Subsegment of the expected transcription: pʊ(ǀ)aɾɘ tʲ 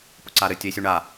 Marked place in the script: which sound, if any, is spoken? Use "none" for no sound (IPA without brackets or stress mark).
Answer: ǀ